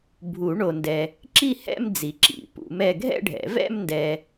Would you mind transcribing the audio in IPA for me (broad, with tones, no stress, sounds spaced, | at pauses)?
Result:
bʱ u˨˩˦ ɳ o˨ n d ɛ˨ | ǁ i˥˧ h ɛ̰˥˧ m d͡z i˨ ǁ ḭ˨˩˦ p ṵ˨˩˦ m ɛ˥˧ ɡʱ ɛ̰˥˧ ɖʱ ɛ̰˨˩˦ v ɛ̰˥˧ m n d ɛ˨